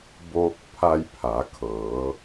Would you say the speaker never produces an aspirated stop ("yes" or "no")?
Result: no